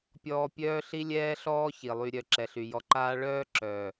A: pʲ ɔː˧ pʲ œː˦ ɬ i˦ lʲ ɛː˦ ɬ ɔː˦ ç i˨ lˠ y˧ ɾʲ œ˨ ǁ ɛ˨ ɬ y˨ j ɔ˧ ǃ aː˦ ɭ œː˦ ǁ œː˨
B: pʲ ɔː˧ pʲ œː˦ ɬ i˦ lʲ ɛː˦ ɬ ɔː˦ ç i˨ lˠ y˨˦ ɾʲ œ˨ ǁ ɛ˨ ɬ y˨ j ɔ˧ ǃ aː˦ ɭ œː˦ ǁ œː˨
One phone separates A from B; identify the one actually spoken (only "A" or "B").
A